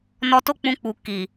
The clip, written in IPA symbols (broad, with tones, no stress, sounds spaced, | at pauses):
n ɔ˧ t o˦ k͡p ũ˧ k͡p u˨ k i˨